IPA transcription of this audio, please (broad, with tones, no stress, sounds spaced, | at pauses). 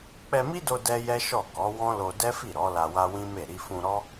k͡p ɛ˧ m i˦ d o˧ d ɛ˦ j ɛ˦ ʃ ɔ˦˨ k ɔ˨˦ w ɔ̃˦ l o˧ d ɛ˦ f i˦˨ ɾ ɔ˨˦ l a˧ w a˦ w ĩ˦ m e˦˨ ɾ i˧ f ũ˧ ɾ ɔ˦